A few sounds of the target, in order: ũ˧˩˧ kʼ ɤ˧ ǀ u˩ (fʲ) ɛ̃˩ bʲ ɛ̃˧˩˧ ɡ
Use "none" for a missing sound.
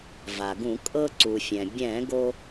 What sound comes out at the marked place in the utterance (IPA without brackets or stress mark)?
fʲ